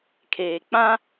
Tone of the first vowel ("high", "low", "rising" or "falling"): low